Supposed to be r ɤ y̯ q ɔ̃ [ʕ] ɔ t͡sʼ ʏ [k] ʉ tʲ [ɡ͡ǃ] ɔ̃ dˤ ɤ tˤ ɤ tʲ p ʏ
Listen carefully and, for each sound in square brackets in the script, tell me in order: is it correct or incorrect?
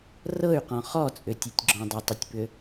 incorrect: χ, incorrect: tʲ, incorrect: ɡ͡ǁ

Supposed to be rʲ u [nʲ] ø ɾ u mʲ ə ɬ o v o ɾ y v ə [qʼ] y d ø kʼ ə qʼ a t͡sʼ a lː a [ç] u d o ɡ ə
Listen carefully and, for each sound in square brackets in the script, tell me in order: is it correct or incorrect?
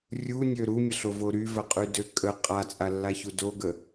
correct, correct, correct

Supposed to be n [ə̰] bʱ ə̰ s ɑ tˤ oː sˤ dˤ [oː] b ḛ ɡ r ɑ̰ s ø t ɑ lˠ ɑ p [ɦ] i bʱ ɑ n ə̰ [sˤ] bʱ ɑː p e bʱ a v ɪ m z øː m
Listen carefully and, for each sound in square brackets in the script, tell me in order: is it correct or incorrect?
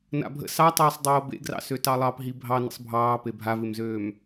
incorrect: a̰, correct, correct, correct

